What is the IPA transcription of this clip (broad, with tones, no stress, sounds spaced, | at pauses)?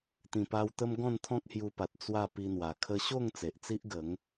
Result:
t̪ ĩ˨˩ p a˧ w t̪ ə˦ m ɡ ɔ̃˥˧ n t̪ʰ ɔ̃˦ k̚ h j u˧ p a˨ t̚ t͡s w a˥˧ p i˧ n̪ w a˨˩ kʰ ə˧ ɕ o˥˧ ŋ t͡s e˨ ʔ t͡s i˦ ʔ ɡ ə˨˦ ŋ